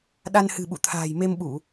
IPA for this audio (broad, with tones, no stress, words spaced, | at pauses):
ɗa˧nhɨ̤˨˩ɓṵ˧˨t̪ʰa̤ː˨˩j me˧mɓu˧˩˨